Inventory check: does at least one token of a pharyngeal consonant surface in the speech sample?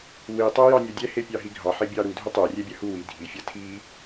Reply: yes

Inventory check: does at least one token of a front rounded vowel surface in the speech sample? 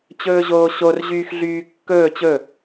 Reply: yes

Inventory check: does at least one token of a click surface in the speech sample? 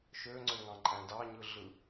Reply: yes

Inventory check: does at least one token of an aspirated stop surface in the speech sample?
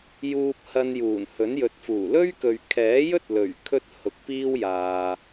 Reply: yes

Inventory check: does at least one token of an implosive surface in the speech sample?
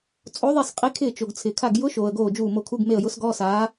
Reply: no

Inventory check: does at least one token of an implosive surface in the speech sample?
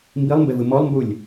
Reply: no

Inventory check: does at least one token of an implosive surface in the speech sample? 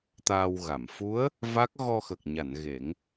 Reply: no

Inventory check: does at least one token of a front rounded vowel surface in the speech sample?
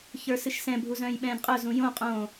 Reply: yes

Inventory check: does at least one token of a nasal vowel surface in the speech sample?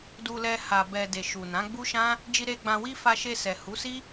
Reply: yes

